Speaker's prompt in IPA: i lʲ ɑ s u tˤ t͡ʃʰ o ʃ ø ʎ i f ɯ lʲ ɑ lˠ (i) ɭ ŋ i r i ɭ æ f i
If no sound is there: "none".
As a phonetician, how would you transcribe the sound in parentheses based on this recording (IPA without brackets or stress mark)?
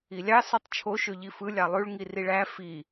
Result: y